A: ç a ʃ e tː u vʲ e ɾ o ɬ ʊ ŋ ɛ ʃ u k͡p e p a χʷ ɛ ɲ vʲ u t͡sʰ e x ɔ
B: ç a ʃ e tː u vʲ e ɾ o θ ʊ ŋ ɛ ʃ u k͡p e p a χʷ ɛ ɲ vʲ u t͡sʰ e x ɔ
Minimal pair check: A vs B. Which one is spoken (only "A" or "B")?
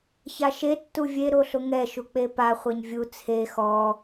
A